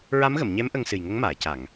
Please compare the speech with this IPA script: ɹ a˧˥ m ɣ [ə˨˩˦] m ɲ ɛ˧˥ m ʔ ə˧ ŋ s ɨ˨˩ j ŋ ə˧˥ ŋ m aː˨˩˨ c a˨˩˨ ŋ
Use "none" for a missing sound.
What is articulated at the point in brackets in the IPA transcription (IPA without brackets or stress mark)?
ə˨˩˨